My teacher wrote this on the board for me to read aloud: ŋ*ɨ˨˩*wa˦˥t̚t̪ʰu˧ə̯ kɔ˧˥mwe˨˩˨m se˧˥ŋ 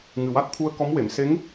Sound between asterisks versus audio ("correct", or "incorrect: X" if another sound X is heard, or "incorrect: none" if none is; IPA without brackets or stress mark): correct